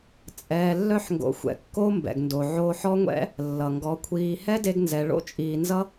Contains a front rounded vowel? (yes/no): yes